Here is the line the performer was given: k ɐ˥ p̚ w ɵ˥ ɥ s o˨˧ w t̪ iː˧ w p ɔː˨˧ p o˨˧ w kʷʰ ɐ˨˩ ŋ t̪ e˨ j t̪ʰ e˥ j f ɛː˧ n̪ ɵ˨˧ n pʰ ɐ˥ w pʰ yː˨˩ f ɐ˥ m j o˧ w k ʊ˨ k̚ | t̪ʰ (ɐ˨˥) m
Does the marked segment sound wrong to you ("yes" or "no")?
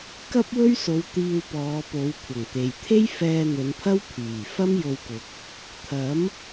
no